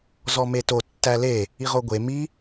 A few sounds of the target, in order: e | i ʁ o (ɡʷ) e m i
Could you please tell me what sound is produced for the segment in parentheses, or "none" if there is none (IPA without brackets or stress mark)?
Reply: ɡʷ